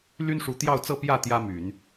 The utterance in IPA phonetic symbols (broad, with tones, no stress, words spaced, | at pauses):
ly˥nʂu˧˥t̪jɑ˥˧ʊ̯t͡sɤ˥˧ pjä˥˩ t̪jä˥my˨˩˦n